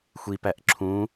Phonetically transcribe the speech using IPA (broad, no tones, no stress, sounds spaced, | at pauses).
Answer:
xʷ i p æ ʔ ǁʰ ũ